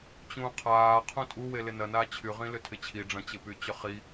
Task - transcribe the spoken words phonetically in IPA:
t͡ɕ ũː qʰ aː qʰ ũ tʼ u w e l ɪ n ɐ n aː t͡ɕʰ y ʁ ĩ l ʏ tʰ ɪ t͡ɕʰ i ɖ͡ʐ ɐ̃ t͡ɕ ɪ p y t͡ɕ ʏ χ i

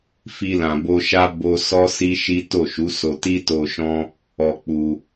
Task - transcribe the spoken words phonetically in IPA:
f i˧ l ã˨ b o˧ ʃ a˦ b o˧ s ɔ˦ s i˦ ʃ i˦ t o˦˨ ʃ u˨˦ s o˧ t i˦ t o˧ ʃ ɔ̃˦ | ɔ˧ k͡p u˧

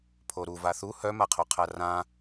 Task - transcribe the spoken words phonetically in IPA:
pʰ o ɾ u v a θ u h œ m a qʰ o qʰ a r ã

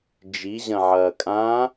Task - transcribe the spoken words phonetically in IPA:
d͡ʒ i ʑ ɐ̃ ʕ ɐː kʼ ã

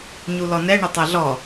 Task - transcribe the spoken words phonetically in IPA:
ɲ u l ɔ n ɛ ɳ ə tˤ ɐ ɮ ɔ

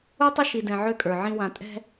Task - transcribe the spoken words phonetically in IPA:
u˦ tˤ ʏ˦ ʃ i˨ d ɛ̃˨ ʕ ø˦ kʼ ə˞˨ ʕ ĩ˦ w ã˨ tʼ ɛ̤˦

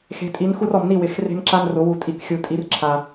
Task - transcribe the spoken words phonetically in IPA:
x e̤˨˦ tʼ i˨˦ n x u˦ r ɔ˨ m n i˦˨ w ɪ˨˩˦ x r e̤˦ m ǁ a˦ n r ʊ˨˩˦ w u˨ tʼ i˨˦ k xʲ u˨ tʼ i˨˦ r ǁʰ a˨

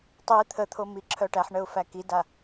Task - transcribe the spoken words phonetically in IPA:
tˤ i t̪ʰ ə t̪ʰ o m i ǁʰ œ ʈ æ ħ ɳ ə ʊ̯ f æ k i d a

